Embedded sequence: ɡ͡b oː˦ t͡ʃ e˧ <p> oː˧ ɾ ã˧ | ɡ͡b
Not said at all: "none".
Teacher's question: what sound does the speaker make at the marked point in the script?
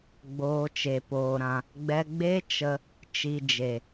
p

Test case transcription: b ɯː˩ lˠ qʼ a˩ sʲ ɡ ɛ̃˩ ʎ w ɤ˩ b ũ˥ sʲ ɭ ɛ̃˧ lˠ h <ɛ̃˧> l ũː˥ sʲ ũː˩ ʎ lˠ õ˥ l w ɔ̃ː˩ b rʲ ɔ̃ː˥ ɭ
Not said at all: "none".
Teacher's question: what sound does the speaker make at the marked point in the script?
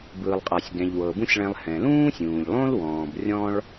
ɛ̃˩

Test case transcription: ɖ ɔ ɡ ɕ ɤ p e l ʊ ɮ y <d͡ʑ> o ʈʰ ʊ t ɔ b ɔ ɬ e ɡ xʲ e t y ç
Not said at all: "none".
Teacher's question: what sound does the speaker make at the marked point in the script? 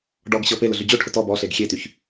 d͡ʑ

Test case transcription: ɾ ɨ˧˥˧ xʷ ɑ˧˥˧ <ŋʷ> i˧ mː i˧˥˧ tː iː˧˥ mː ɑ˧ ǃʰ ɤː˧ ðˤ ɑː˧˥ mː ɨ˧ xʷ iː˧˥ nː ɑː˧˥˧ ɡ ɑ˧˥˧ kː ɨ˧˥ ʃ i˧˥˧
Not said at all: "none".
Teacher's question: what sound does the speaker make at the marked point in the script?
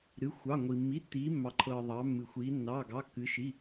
ŋʷ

